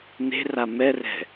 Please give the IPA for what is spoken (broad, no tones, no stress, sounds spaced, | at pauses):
n e̤ r a m ɛ r ɛ̤